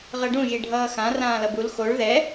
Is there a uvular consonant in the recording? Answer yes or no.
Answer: yes